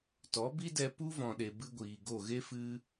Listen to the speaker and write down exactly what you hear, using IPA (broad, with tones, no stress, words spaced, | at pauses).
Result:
tɔ˨˦bi˦dɛ˧ pu˦vɔ̃˨ɗe˨ bɨ˦ɡʷiː˨ɡo˦˨ ɣe˦fɨ˧